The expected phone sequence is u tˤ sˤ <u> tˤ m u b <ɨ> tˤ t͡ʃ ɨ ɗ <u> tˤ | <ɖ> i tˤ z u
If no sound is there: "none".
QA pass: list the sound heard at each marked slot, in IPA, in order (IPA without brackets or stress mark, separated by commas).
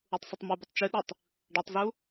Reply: u, ɨ, u, ɖ